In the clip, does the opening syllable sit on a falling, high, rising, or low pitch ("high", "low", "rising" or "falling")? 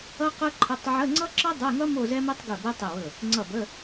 high